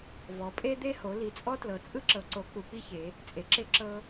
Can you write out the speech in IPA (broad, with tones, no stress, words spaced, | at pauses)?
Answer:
vɔ˩˧pʼe˦d̪e˦ho˩˧ li˩˧t͡sʼɔ˦tlɤ˩˧ t͡sʼɯ˦ǁɤ˩˧ǀo˩˧ k͡pu˩˧k͡pi˦çe˩˧ | t͡sʼe˩˧ǁe˦ ǁɤ˦